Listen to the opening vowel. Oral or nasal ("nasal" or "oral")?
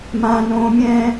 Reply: nasal